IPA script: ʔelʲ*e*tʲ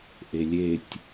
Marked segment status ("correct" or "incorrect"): correct